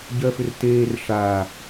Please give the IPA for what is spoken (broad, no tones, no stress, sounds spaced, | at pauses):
ɟ ɜ f ʏ r t eː r ʂ aː